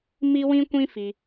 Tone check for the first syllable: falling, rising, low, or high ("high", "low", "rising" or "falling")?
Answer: high